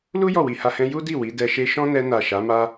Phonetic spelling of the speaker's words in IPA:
l u˦ j ɔ˦˨ w i˧ h a˧ h ɛ̃˦ j u˦ d i˦˨ w i˨˦ d ɛ˧ ʃ e˦ ʃ ɔ̃˦ n ɛ˧ n a˨ ʃ a˨˦ m a˦

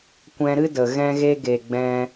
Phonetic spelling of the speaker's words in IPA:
kʷ ɛ̃˧ ɾ ɨ˦ d ə˨ ɣ ɛ̃˦ ɣ e˦ ɡ e˨ ɡ͡b ɛ̃˧

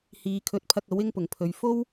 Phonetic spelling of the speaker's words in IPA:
h iː˨˧ kʰ ɵ˨˥ t̚ pʰ ɐ˧ k̚ ɐ˨˥ w ɪ˥ ŋ p ʊ˨˩ ŋ pʰ ɵ˨ ɥ f o˥ w

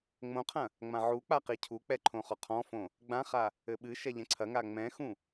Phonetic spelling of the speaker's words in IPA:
ŋ͡m õ qʰ ɐ̃ | ŋ͡m ã ʕ u k͡p a q i cʰ u k͡p ɛ ǃʰ õ χ ɔ qʰ ɔ̃ f õ | ɡ͡b ã χ a | ɘ ɓ ɨ ʃ ɛ ʎ ɛ̃ ǀʰ ɐ ŋ a ŋ͡m ɛ̃ x ũ

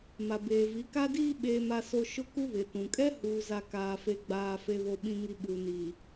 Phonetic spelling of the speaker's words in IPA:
m a˨ b eː˨ v i˨˦ k a˦ d iː˦ ɓ eː˨ m a˨ s o˨ ʃ ʊ˦ k u˦ β ɪ˨ t ũ˨ kʼ ɛ˦ h uː˨ z a˨ k aː˨ f e˨ ɡ͡b aː˨ f e˨ β o˨ ɓ ĩ˨ ŋ i˨ ɓ uː˨ n iː˨

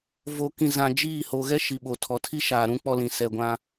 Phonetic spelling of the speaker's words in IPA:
v o˨ k ĩ˨ z ã˨ d͡ʒ iː˦˨ h o˨ ɣ ɛ˦ ʃ i˨ ɓ o˨ tʰ ɔ˨ tʰ i˦ ʃ aː˨ ɾ ũ˦ k͡p ɔ˦ l ĩ˨ s ɛ˦˨ ɡʷ ã˦

